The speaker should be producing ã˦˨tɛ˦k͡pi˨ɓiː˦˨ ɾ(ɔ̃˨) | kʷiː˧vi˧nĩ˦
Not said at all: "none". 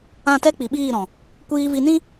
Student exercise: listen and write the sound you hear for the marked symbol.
ɔ̃˨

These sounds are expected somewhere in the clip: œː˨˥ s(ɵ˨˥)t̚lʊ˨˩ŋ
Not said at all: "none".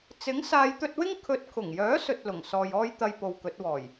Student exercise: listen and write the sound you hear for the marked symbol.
ɵ˧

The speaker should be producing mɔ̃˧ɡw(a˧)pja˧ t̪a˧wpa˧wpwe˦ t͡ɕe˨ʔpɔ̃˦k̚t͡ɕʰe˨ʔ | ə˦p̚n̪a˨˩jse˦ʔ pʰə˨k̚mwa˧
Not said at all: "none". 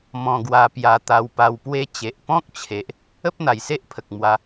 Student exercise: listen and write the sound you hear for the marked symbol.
a˧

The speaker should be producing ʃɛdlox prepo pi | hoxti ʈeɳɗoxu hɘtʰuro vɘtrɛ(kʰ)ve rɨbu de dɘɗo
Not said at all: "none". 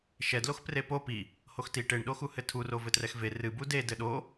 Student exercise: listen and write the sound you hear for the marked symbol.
x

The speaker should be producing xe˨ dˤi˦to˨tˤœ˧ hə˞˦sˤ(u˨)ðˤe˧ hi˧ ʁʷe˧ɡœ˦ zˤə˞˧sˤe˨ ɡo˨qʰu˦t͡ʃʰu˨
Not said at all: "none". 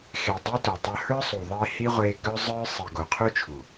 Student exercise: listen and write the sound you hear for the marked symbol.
u˨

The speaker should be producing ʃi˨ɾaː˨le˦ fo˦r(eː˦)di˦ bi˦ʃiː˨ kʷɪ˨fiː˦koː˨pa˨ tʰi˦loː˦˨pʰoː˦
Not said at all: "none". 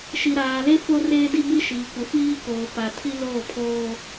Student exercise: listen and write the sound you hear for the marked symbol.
eː˦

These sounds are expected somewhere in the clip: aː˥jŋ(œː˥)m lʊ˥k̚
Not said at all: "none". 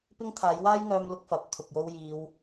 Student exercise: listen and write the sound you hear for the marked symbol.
œː˧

